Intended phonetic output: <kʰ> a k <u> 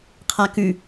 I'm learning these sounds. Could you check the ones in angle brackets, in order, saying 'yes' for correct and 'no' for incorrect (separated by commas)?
no, no